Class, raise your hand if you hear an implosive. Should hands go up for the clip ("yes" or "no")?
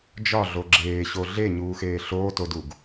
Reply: no